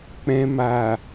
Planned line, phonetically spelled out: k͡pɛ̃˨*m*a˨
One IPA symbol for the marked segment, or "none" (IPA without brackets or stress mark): m